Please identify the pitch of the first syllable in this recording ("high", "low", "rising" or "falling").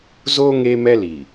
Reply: high